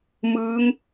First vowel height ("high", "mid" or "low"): high